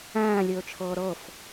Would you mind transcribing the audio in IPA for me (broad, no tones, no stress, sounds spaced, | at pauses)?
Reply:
æ̃ː lʲ ɵː t͡ʃʰ ɤː ɾ ɤ f